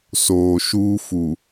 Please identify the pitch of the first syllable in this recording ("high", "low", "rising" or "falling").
low